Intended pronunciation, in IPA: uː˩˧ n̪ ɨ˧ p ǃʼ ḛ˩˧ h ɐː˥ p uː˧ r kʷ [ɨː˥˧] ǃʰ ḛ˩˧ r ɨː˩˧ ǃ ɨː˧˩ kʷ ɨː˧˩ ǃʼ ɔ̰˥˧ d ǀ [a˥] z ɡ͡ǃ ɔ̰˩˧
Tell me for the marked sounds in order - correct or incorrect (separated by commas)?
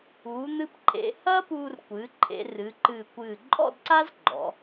incorrect, correct